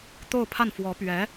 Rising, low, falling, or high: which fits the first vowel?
falling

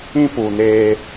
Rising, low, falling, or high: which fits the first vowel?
high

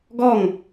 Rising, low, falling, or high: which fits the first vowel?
falling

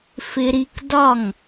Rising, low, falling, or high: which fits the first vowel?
high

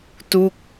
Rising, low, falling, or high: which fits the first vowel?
falling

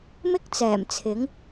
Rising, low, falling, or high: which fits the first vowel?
high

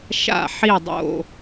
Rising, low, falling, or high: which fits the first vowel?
falling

